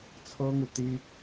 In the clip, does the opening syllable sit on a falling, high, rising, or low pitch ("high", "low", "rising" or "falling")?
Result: high